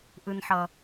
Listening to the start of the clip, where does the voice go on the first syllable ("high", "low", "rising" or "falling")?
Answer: low